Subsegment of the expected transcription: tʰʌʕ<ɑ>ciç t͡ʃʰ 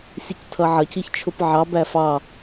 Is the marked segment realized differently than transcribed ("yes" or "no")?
yes